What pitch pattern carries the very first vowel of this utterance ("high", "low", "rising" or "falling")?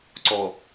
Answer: low